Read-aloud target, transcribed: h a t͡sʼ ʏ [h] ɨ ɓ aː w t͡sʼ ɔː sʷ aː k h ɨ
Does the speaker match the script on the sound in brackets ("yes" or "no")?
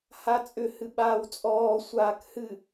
yes